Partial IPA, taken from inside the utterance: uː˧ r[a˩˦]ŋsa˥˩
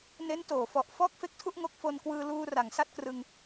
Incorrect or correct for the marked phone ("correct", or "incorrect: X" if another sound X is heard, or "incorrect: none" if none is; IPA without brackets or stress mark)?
correct